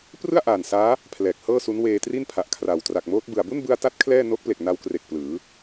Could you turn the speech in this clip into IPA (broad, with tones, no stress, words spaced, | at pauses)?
prɯ˥˩a̯ʔaː˨˩n saː˦˥ | pʰlɛː˨˩k̚hɤː˥˩su˦˥n weː˧tri˥˩npʰa˨˩ʔkʰra˨˩w tra˨˩k̚moː˦˥t̚bɯ˨˩a̯ bu˥˩nbɯ˧a̯ta˦˥t̚ kʰlɛː˥˩ no˦˥k̚ple˨˩k̚ na˧wkre˨˩k̚ plɯː˩˦